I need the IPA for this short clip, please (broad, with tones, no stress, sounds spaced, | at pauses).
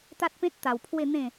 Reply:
t̪ a˦ t̚ p ẽ˦ t̚ t̪ a˧ w pʰ w e˥˧ n̪ ẽ˥˧